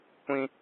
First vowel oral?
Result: no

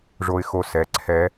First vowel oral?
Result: yes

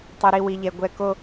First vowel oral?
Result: yes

